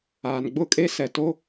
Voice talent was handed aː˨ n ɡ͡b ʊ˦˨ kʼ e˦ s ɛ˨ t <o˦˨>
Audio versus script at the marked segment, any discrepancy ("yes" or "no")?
yes